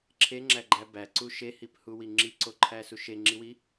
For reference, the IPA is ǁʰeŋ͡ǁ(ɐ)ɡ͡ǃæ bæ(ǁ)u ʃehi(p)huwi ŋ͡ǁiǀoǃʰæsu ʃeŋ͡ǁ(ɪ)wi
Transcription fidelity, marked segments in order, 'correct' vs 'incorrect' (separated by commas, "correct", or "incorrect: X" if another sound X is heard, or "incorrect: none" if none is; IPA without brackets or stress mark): incorrect: æ, incorrect: ǀ, correct, incorrect: i